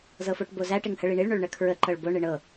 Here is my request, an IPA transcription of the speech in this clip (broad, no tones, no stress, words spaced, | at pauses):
zɤfoʈbozæ ʈɪŋhəɭiɳiɭ ɳoɭɳəkʰɹə ǃɤɭbo ɳɪɳɤ